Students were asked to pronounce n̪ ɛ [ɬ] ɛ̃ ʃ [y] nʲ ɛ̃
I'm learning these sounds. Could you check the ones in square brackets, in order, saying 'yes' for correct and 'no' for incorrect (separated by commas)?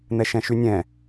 no, yes